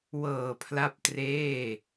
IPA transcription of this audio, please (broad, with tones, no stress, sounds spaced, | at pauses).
w ɤː˨˩ pʰ l a˥˩ p̚ t r eː˥˩